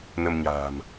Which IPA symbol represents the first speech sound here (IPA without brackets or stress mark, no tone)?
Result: n